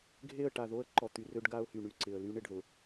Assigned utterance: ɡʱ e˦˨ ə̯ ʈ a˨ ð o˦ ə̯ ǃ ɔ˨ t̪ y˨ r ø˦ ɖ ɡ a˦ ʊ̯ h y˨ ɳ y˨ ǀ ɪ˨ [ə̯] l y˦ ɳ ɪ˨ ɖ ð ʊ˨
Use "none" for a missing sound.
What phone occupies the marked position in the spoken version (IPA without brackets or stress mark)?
ə̯